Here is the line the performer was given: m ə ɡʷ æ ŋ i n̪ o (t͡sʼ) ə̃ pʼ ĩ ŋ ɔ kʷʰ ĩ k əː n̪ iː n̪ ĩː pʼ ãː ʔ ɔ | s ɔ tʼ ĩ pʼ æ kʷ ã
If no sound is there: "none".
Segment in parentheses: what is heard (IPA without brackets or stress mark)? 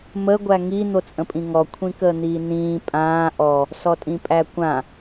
t͡sʼ